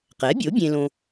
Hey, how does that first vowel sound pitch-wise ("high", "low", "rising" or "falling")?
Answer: rising